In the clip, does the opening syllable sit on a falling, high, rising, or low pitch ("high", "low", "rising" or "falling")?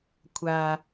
high